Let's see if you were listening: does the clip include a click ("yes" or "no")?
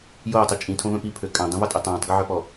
no